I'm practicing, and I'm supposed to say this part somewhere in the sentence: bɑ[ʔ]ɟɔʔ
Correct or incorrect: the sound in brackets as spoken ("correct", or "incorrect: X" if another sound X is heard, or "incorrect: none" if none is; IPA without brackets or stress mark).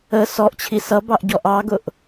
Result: correct